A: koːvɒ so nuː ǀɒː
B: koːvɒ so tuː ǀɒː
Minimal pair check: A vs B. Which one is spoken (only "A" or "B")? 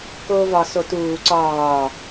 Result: B